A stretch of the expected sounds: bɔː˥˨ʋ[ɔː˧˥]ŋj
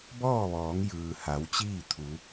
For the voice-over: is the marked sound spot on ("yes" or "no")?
no